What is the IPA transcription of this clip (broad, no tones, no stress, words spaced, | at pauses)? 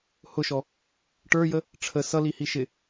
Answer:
hʊʃɔ | ʈə˞jə | ʈ͡ʂʰə sʌlihi ʃɪ